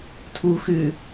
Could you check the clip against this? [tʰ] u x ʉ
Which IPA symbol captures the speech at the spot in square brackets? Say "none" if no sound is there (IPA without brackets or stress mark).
tʰ